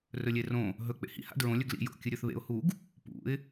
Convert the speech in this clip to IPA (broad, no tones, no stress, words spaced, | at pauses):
rɵlʲerõ | ɦɵ k͡pḛhḭ ha̰dɹõ lʲɵɡlḭ jo̰ kʲɨɾʲɵθβḛʊ̯ huɡ | pṵɪ̯